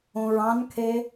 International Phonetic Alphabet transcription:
õ ɹ ɑ̃ n kʰ e

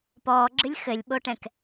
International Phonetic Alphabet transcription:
p ɔː ɡ͡ǁ ɨ lʲ x ɘ lʲ ɓ o ʈ ɛ̃ k

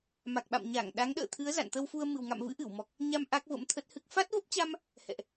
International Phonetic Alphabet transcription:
m a˨˩ k̚ ɓ a̰˧˨ m ɲ a˧˩ ŋ ɗ a˨˦ ŋ ɗ ə̰ː˧˨ t̪ʰ ɨ˨˦ ə̯ z a̰˧˨ n t̪ ə˧ w f u˧ ə̯ m ɨ˨˩ w ŋ a̰˧˨ m v ɨ̰˧˥ ʔ ɨ˧˩ w m ɔ˨˩ k̚ | ɲ a˧ m ʔ a˦˥ k̚ v ə̰˧˥ m t̪ʰ ə˦˥ t̚ h ɨ˦˥ k̚ f a˦˥ t̚ v ə˦˥ p̚ t͡ɕ a˧ m | h ɛ̰˧˨ ʔ

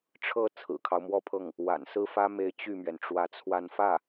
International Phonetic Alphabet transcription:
ʈ͡ʂʰ ɤ˥˩ t͡sʰ ɹ̩˨˩ kʰ ɑ˦ ʊ̯ m w ɔ˥˧ pʰ ɤ˥˩ ŋ | w a̰˨˩ n s ɹ̩˥˩ f ä˥ m e˧˥ ɪ̯ t͡ɕ y˥˩ m ɥ ɛ˩ n ʈ͡ʂ w ä˧˥ t͡sʰ w a˥˧ n f ä˥˩

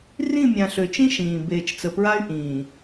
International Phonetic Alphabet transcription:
r ĩ˦˨ mʲ ã˨ ɬ ø˨ t͡ʃ ĩ˦ ʃ ĩː˨ b eː˨ t͡ʃ t͡s ə˨ p ɹ a˦ y̯ ʔ ĩː˨

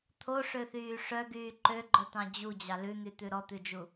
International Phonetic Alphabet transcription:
t̪ʰ o ʂ ø θ yː ʂ œ ɡ yː ǃ ø ɡ͡ǃ œ t̪ ɑ̃ d͡ʑ u d͡ʑ ɑ l ʉ n̪ y t̪ ʉ ɾ ɔ t̪ ʉ d͡ʒ u

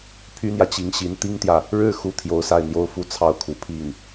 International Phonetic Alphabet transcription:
pʰ y˥ n̪ j ä˨ t͡ɕ i˧˥ ŋ ɕ i˧˥ n t̪ i˥ ŋ t̪ j ä˨ | ɻ ɻ̩˥˩ x u˥ t̪ʰ j o˧˥ ʊ̯ s a˥˩ ɪ̯ n̪ j o˥ ʊ̯ f u˥˧ t͡sʰ ɑ˥˩ ʊ̯ kʰ u˨˩ pʰ i˥˩ ŋ

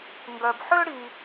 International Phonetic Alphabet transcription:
ŋ ɡ œ˨ b ħ ø˥ ɽ i˨

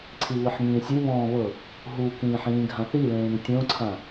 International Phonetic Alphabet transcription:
ǀʰ i β ɯ ħ ŋ ĩː sʲ u β ɔ̃ː β ɤ | ɦ u k ĩː ħ ĩː ɡʱ ã θ i l ẽː ŋ tʲ õ ǀʰ ã

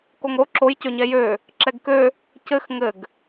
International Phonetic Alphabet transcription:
k o ŋ ɾ o ǁ o j c ø ɲ ɛ j ø | ǁ ɛ ɡ k ø | c ɘ x ŋ ɘ ɡ

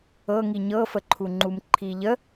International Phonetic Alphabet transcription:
ɤ ŋ i ɲ ɤ f ə ǃʰ u ŋ͡ǃ u m ǃʰ i ʎ ə

